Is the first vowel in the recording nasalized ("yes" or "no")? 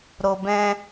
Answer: no